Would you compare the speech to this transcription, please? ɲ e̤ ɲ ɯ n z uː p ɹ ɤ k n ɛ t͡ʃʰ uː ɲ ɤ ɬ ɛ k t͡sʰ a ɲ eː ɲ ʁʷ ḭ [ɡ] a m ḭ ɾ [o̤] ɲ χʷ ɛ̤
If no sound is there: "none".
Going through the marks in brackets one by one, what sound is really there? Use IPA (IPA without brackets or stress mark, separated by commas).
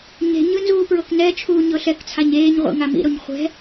ŋ, o